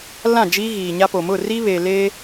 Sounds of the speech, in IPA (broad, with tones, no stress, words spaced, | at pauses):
lã˦˨d͡ʒiː˦ ɣiː˨ɲa˦po˨ mʊ˦˨ri˦βeː˨ leː˦